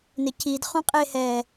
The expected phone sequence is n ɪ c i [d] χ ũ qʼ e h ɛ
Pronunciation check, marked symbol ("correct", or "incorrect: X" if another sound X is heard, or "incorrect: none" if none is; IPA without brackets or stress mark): correct